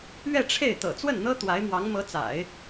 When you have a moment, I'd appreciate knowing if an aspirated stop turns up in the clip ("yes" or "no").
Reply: yes